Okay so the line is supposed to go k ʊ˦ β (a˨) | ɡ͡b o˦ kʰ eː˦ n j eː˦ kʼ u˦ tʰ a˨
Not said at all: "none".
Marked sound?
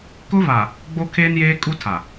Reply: a˨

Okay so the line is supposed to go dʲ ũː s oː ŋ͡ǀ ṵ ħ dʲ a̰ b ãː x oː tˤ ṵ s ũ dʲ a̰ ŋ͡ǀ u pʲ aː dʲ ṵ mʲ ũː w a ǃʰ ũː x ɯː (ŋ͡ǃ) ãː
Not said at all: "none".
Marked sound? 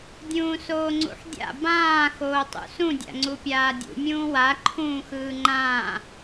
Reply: ŋ͡ǃ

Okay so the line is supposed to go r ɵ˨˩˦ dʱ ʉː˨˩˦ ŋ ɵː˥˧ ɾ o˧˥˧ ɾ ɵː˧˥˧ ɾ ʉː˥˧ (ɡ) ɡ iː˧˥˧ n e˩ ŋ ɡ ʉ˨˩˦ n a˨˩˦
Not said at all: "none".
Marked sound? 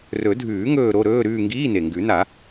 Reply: ŋ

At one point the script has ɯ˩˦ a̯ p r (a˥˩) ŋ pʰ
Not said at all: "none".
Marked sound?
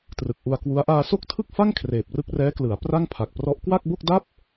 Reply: a˥˩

